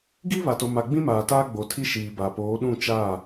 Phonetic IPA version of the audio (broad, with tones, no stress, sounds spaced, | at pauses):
ɡ i˦ β a˨ t o˨ m a˨ ɡ͡b ĩ˦ m aː˨ t aː˦ ɡ͡b o˨ tʰ i˦ ʃ iː˨ b a˨ p oː˨˦ ɗ ũ˦˨ t͡ʃ aː˦˨